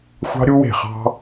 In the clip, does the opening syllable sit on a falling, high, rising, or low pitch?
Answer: high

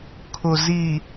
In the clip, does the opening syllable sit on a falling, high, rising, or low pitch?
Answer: low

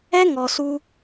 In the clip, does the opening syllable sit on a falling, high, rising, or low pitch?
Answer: high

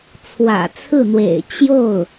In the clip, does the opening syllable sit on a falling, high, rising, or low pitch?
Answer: low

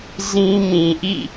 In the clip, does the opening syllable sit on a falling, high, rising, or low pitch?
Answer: high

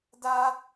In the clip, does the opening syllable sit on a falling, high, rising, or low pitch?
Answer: high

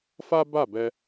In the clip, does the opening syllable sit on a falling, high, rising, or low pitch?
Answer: high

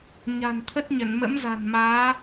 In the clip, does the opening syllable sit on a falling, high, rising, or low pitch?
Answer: low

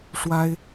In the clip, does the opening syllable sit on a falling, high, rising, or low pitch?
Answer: high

